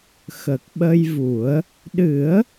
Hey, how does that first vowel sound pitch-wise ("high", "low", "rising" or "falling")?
low